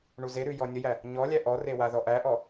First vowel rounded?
yes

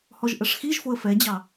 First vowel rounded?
yes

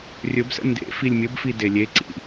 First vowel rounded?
yes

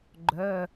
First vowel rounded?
yes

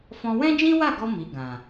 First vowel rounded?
yes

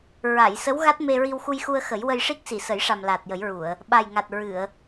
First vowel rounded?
no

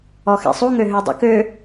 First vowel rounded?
yes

